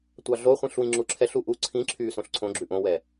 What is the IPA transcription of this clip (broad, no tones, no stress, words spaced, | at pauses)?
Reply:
tʷɑɮo χʷĩɬwĩŋ͡ǁuǁʰɛɬ uʔu ǀʰĩǁʰyː sõɬǀʰõ ɡ͡ǁʉʔõwɛ